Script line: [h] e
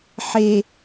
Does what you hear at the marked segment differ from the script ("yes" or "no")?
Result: yes